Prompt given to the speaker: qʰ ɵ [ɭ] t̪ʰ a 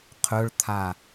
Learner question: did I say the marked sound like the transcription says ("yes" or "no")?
yes